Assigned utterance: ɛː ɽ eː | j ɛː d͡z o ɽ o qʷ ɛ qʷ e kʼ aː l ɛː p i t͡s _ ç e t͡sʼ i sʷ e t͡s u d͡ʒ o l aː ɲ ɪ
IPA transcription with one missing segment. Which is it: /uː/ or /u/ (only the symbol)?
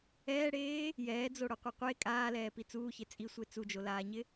uː